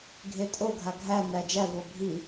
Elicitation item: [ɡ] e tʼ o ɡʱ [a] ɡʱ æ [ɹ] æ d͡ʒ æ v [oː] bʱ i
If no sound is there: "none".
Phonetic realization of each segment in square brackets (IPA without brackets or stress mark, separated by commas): ɡʱ, a, n, o